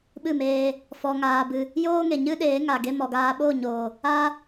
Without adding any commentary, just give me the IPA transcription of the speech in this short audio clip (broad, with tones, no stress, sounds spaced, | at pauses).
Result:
ɓ ɨ˦˨ m eː˧ | f ɔ˧ ŋ aː˧ b ɨ˧ | j oː˦ ŋ e˨ ɲ ɨ˦ ɗ eː˨˦ ŋ a˨ ɡ e˧ m ɔ˨ ɡ aː˧ ɓ o˦˨ ɲ oː˨ | a˦